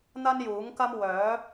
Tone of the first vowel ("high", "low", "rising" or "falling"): high